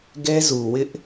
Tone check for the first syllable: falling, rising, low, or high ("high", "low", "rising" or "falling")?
high